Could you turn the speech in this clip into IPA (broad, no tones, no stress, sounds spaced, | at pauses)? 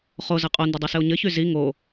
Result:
χ o z ɘ qʼ o n d ɘ dˤ i s ɘ o̯ ɲ ɘ ç y z i ŋ o